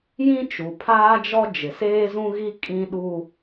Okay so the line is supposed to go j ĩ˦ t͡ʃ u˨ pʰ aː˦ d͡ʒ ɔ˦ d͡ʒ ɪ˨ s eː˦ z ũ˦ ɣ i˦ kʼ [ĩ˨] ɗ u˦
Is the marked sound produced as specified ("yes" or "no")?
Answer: no